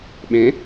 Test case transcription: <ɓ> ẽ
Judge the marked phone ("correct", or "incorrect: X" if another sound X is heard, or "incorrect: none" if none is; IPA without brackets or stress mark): correct